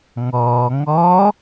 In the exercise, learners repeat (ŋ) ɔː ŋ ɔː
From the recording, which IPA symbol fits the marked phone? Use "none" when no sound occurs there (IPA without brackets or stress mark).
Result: ŋ